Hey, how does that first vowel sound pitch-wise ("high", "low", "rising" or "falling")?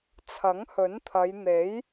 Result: rising